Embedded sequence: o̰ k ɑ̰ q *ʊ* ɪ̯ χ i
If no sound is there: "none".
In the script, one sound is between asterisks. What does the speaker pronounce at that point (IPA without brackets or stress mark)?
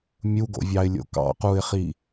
u